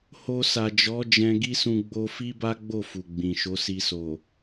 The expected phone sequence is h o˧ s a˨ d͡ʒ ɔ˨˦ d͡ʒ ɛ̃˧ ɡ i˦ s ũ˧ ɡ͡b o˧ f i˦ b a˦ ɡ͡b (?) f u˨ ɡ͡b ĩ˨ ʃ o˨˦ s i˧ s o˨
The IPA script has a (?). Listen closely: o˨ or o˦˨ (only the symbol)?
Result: o˦˨